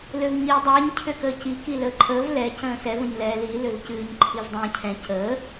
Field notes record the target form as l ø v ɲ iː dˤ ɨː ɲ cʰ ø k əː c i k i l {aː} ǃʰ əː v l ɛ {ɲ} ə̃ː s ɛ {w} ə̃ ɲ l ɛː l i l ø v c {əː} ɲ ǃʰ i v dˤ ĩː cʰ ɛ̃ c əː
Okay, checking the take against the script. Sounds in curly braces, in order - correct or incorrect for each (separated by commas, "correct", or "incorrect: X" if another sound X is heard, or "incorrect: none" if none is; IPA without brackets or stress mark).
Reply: incorrect: əː, incorrect: c, incorrect: v, incorrect: ɨː